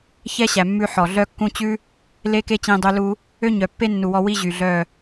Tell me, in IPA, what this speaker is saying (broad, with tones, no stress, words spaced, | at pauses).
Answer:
çɛ˦ɕæ˨ mːʉ˧ħɔ˨ ɮœ˧kːũ˧ t͡ɕʉ˦ | le˦ke˦t͡ɕĩ˧ dˤø˧lu˧ | ø˦ɲœ˨ pːe˦ nːu˨wɔ˧ wi˧ ʑy˨ɮœ˦˨